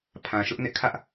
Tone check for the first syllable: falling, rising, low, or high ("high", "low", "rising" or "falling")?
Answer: low